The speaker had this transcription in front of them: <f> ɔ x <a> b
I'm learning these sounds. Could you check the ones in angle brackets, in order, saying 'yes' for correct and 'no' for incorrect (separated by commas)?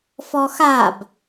yes, yes